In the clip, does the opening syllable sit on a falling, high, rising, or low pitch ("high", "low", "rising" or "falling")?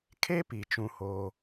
high